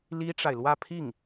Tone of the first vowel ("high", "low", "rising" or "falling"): high